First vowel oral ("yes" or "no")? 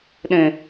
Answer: no